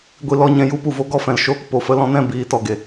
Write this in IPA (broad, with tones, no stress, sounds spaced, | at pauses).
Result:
ɡʷ i˧ l ɔ˧ ɲ ɛ̃˧ j u˦ p u˨ v o˦ ɡ ɔ˦ f ɛ̃˨ l ʃ oː˦ k p o˨ f ə˧ l ɔ̃˧ n ɛ̃˦˨ b iː˨˦ t ɔ˨ ɡ e˨